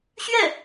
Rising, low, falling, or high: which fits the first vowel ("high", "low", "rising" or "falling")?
falling